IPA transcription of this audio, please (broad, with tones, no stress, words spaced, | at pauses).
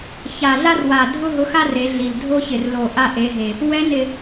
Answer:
ça˨˩ɮa˦rwa˨˩ dʱʊ˦ɦʊ˨˦xa˦ re˨˦ɮi˨˩l dʱo˦çɪ˨˩r lo˨˩ ʔa˦ʔe˨˦ɦe˨˩ | wɛ˨˦nɪ˨˩